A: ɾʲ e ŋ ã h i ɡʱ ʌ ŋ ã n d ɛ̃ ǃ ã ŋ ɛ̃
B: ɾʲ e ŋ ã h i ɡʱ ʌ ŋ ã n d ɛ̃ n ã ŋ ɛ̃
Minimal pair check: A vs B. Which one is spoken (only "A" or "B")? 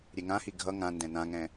B